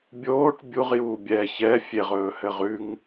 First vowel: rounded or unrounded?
rounded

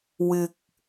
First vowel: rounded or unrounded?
unrounded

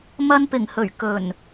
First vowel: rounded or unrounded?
unrounded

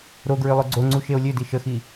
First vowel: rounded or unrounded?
rounded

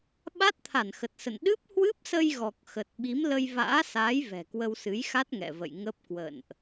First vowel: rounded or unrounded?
unrounded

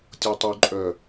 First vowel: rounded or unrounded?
rounded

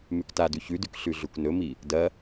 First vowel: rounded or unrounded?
rounded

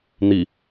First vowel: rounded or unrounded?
unrounded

